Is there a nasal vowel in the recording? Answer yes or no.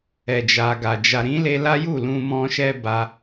yes